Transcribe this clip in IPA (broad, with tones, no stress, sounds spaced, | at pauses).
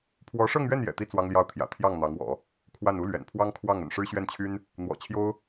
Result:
pʰ w ɔ˧˥ ʂ ɤ˥˧ ŋ ɥ ɛ˥˩ n j ɛ̰˨˩ t̪ i˥ t͡s w ɑ˥ ŋ l j ɑ˥˩ ʊ̯ t̪ʰ j ä̰˨˩ t̪ʰ j ɑ˥˩ ŋ n̪ ɑ˧˥ ŋ w ɔ̰˨˩˦ | kʰ w a˥˩ n u˥ l ɥ ɛ̰˨˩ n pʰ w ɑ˥ ŋ kʰ w ɑ˥˩ ŋ ə̰˨˩ n ʂ ɻ̩˥ ɕ ɥ ɛ˥˩ n t͡ɕʰ y˥ n | n̪ w ɔ̰˨˩ t͡ɕʰ j o˥ ʊ̯